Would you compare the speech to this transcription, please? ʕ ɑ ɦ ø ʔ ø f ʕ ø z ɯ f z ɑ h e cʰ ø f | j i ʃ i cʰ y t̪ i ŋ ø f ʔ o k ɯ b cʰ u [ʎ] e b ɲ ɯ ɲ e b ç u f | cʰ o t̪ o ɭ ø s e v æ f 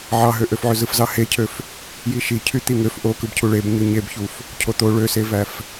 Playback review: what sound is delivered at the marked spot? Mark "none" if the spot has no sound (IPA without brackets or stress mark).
ɭ